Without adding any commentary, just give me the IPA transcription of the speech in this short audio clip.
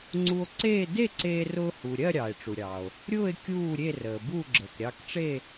ŋ͡ǀu˧o̯ǀeː˥˧ de˥˧ǀeː˧rʊː˧ hu˩ ɾʲɜ˥˧ɾʲɑː˩e̯ʈ͡ʂu˩ɾʲɑː˩o̯ | ɾʲʊː˥˧e̯ kʲuː˥˧ɾʲe˥˧rəː˩bu˥˧ ɡ͡ǁəː˩kɾʲɑ˧kʈ͡ʂe˥˧

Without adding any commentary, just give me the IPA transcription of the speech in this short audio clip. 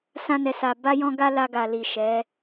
sã˧nɛ˨sa˨ ba˧jɔ̃˧ɡa˧ la˧ɡa˨li˨ ʃɛ˨˦

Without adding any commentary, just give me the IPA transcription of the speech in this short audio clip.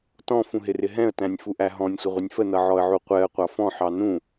tɔ̃fũɦɪrɪ ɦɛ̃ə̯tæ̃nʲfuʔæ ɦɔ̃nʲsʷəʁʷɪnʲ fənʌʕɔə̯ʕu qʷɛə̯qʷɑ fɔ̃ħɑ nũ

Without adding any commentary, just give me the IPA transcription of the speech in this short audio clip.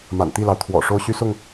ma̰˨˩nt̪i˥˨lɑ˩ʊ̯ t̪ʰwɔ̰˨˩ ʂo˦ʊ̯ɕy˦sʊ˥˨ŋ

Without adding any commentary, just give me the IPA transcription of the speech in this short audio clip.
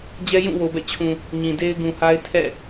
d͡ʑɛ˦jũ˦˨wo˨bɛ̰˦˨ t͡ɕʰũ˨ | ɲĩ˨de˦ɪ̯ ɡũ˨ha˦ɪ̯ tʰɛ̰˦˨

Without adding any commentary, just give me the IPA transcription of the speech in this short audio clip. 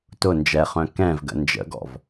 tʊ nd͡ʒɛχœ̃ kɛ̃vɡə̰ nd͡ʒə̰ɡɔ̰v

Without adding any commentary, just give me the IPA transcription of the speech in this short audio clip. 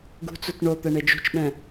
ɡṳt͡sut ɳot̪ɛɳe d͡ʒṳt͡ʃɓɛ̃

